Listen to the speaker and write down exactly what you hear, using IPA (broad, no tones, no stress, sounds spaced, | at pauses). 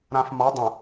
ɾ ã f m ɒ dˤ ə̃